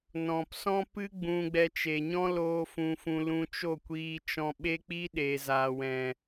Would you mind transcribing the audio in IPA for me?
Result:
n ɔ̃˨ p s ɔ̃˦ p ɨ˦ ɡ͡b ũ˧ ɡ͡b ɛ˧ t͡ʃ e˨ ɲ ɔ̃˦ l oː˧ f ũ˨ f ũ˨ l ũ˧ t͡ʃ o˦˨ kʷ iː˧ t͡ʃ ɔ̃˧ ɓ e˦ k͡p i˦ ɗ e˨ z aː˨ w ɛ̃˨

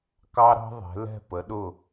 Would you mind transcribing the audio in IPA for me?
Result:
k ɑ˦ ɾ ɑ̤˦ ðˤ ɛ̤˨˦ l ɛ̤˦˨ p ə˨˦ ɗ ʊ˦˨

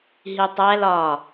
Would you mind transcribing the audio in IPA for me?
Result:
ɦ i tˤ æ l ɒ

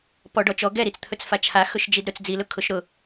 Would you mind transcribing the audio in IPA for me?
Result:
p ɔ ɖ ɔ t͡ʃ ɔ ɡ ɛ ɾ i t͡s t̪ʰ ɵ t͡s f a t͡ʃʰ a x ɵ ʃ d͡ʒ i d ɾ ɵ t͡s d͡z i l ʊ kʰ ʊ ʃ ɾ ʊ

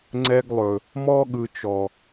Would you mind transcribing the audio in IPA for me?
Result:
ŋ͡ǀ ɛ˧ ɡ lˠ ɵ˨ | m ɔ˦ ɠ ɯ˨ t͡ʃ ɔ˨

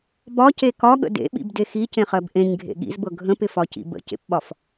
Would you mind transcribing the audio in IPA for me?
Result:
b ɒ c e k ɒ ɠ ə̰ d ḛ ɓ ḭ b d e x i c ẽ χ ɜ b ʔ ẽ ɲ ɡʱ ḛ ɠ ḭ z b ɤ ɡʱ ə̃ p ɪ f ɒ c ḭ b ə̰ c ḛ p ɓ ɒ f

